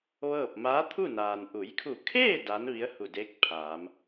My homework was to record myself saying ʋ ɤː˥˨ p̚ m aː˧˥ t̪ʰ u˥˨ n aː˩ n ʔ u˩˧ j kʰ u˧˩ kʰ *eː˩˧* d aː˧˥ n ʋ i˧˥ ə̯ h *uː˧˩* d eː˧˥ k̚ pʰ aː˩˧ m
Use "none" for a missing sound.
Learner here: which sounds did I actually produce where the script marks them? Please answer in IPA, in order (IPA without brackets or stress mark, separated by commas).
eː˥˨, u˧˩